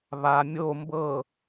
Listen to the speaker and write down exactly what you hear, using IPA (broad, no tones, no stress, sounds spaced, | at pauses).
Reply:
β a mʲ o m b ɤ